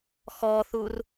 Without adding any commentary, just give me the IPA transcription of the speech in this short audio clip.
x ɔ θ u r

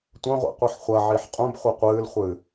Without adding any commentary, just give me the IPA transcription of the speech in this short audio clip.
tʷ ɐ̃ ʁʷ ḭ qʷ i ħ χʷ ɐ ʕ i ħ qʼ ũ b χʷ ɨ qʷ ɨː l χʷ ɨː

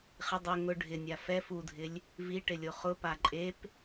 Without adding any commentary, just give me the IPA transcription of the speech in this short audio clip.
χ ɪ dˤ ʊ ŋ ʊ ɖʱ ɪ nʲ a f ɛ f u dʱ ɪ lʲ | v i ʈ ɪ lʲ o χ ʊ p a ǃʼ e p

